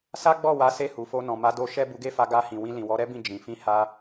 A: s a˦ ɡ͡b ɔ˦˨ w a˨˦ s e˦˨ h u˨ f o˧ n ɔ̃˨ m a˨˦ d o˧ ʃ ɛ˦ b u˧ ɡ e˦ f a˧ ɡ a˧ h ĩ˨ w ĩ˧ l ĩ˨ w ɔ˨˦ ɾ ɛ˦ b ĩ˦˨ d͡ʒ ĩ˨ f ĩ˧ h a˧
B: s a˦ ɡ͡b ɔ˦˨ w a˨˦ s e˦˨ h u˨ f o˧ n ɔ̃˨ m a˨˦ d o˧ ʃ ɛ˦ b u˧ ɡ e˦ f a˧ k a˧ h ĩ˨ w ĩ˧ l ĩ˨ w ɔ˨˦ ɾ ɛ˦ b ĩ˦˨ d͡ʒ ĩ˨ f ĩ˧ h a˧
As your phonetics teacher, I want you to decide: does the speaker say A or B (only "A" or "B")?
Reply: A